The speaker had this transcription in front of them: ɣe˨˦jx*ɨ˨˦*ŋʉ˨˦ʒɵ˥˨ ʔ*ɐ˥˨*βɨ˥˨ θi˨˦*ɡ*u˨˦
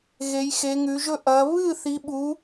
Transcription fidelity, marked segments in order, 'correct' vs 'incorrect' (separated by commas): incorrect, incorrect, incorrect